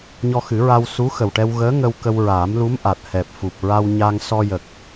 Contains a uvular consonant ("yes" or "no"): no